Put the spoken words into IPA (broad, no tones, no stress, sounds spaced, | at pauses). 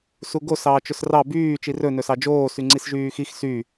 s u ɡ o s ɑː t͡ʃ ɵ s r ɑ b yː t͡ʃ i r ɵ n ɵ s ɑ d͡ʒ oː s y ŋ͡ǀ i s ʒ yː x i x s y